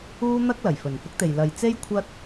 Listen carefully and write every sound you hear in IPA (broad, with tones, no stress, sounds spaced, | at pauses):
uː˥ n̪ ɐ˥ k̚ l ɐ˨˩ j f ɵ˨˩ n f ʊ˥ k̚ t̪ e˨ j l ɐ˨ j t͡s e˥ j kʷʰ ɐ˥ t̚